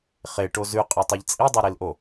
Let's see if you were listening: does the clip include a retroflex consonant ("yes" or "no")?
yes